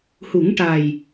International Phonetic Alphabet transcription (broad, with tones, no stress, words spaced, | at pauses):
hu˨˩˦ŋʈa˨˩j